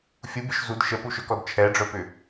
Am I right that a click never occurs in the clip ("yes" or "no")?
yes